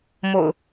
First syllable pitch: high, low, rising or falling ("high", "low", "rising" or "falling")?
low